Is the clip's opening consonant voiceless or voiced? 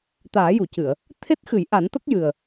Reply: voiceless